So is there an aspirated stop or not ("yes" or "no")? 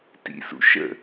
no